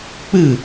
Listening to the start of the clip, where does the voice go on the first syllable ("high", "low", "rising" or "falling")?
falling